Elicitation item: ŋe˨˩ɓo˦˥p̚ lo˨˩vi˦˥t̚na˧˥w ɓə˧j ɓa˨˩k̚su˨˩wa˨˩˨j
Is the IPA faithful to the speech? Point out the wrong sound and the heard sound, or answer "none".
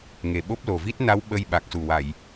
none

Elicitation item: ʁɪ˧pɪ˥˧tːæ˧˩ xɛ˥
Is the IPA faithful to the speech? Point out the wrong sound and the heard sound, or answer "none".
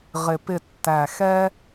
none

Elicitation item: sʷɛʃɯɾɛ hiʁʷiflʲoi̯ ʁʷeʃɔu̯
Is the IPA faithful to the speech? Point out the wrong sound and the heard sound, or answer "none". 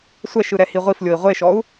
none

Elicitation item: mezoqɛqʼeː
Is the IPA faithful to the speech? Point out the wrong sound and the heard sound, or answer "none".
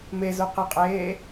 none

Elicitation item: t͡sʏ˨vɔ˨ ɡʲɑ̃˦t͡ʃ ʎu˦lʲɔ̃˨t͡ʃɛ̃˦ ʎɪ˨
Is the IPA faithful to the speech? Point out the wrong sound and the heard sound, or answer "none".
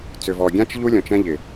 ɑ̃˦ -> ã˦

